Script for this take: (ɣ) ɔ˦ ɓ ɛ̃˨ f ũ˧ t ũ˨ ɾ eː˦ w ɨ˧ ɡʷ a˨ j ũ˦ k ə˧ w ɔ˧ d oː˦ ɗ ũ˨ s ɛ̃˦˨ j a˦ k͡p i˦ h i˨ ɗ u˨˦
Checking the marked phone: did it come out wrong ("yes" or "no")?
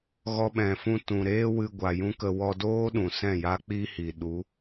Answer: no